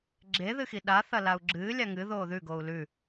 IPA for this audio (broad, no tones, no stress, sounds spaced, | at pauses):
ɡ͡ǁ e ð ɨ x i ɗ a θ ɐ l a u̯ ɡ͡ǁ ɨː lʲ a ŋ ɨ ð oː ð ʉ ɡ oː u̯ l ʉ